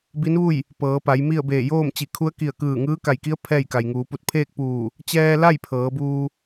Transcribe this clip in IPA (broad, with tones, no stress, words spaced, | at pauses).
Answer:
bi˧˥nʋu˥˨j | pɤː˩˧pa˩˧j mi˥˨ə̯beː˧˩ joː˥˨mt͡ɕi˧˩ kʰu˧˥ə̯ki˧˩ə̯ kɯː˧˩ ŋɯː˧˥ka˧˩jki˧˥ə̯ pʰɛː˥˨jka˩jŋuː˩˧ pu˧˩t̚pʰeː˥˨k̚ puː˧˩ | t͡ɕɛː˧la˥˨j pʰɤː˩˧buː˧